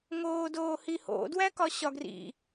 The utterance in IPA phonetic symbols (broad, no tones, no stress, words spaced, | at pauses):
ŋoːdoːhiho̰ dwækɒɕɒɡrḭ